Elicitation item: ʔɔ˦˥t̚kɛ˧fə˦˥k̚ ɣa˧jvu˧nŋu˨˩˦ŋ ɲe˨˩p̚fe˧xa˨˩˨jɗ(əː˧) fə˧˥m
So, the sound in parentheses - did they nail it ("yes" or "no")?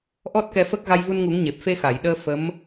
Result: yes